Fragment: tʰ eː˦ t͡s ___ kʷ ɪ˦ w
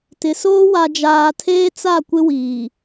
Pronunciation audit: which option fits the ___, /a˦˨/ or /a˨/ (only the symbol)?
a˦˨